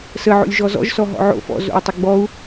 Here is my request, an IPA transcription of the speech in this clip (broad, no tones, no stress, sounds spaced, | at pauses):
s ə ʕ o̰ lʲ ʒ ɔ z ɔ̰ ʒ s ɔ ɦ ɔ̰ ʕ o̰ f ɔ̰ z o̰ i̯ tˤ ɪ ɡ͡b ɔ u̯